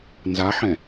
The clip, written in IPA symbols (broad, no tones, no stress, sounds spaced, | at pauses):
n z a ħ ɛ̃